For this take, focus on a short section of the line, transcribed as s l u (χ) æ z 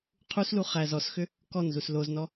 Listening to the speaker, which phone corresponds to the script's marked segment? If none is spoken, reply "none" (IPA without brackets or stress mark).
χ